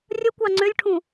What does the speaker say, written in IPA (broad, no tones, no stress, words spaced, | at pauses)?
rʲəkʷɑ ŋ͡ǀʏlʲʈʰũ